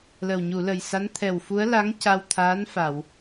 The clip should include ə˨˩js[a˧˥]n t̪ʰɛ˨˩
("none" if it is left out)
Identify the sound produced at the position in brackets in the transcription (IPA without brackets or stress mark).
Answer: a˧˥